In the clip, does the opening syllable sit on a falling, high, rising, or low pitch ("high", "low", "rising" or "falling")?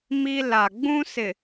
high